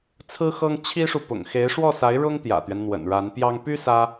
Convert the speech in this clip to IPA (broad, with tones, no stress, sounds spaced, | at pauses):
t͡sʰ ɹ̩˥ x ɤ˥ ŋ t͡ɕʰ i˥ ʂ u˨ p ʊ̰˨˩ ŋ x e˧˥ ɪ̯ ʂ w ɔ˥˩ s a˧˥ ɪ̯ ɻ ʊ˥ ŋ t̪ j ä̰˨˩ t̪ ɥ ɛ˦ n n̪ w ə̰˨˩ n ɻ a˧˥ n p j ɑ˥ ŋ p y˥ s ä˥